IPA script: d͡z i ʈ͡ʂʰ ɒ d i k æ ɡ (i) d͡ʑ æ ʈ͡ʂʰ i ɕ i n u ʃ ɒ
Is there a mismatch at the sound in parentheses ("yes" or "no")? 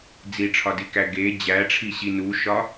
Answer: yes